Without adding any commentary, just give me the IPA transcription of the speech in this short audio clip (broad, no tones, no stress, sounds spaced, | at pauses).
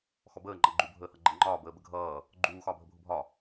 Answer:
x ɔ b əː ŋ͡ǃ ʌ ɡ͡ǃ u bʱ əː h ʌ ɡ͡ǃ ɛ ŋ͡ǃ ɒː b əː b ə ɡʱ ʌː | ɡ͡ǃ uː x ɒː bʱ ə bʱ ʊ bʱ ɒ